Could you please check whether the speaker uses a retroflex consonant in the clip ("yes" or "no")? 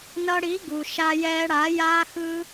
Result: yes